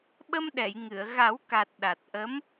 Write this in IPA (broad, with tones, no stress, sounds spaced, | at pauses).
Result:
ɓ ə˧ m ɗ ɛ˨˩˨ j ŋ ɨ˨˩˨ ə̯ ɣ a˨˩˦ w k a˨˩ t̚ ɗ a˨˩ t̚ ʔ ə˧˥ m